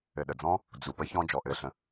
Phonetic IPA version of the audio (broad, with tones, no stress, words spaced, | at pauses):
ɘ˨ɗə˨d͡zɔ̃˦ | d͡zu˨ pə˦ çɔ̃˦d͡ʒɔ˨ʔɘ˦˨ɬə̃˧